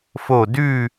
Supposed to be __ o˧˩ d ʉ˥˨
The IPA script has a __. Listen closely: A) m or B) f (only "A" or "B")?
B